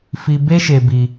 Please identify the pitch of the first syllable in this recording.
high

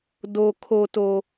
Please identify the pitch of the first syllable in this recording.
low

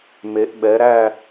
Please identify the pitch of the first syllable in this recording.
rising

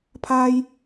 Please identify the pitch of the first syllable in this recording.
high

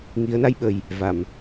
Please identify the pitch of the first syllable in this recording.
rising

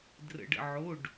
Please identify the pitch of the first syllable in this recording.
low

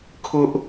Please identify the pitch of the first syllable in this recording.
high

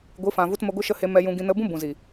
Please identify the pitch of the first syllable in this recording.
rising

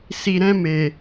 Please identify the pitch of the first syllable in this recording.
low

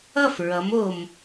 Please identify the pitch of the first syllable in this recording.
falling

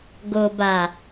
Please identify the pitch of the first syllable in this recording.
low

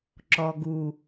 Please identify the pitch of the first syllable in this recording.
low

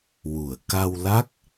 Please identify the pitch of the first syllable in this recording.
low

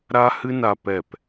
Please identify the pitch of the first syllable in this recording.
high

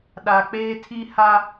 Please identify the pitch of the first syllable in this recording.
low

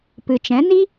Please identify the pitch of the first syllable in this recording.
low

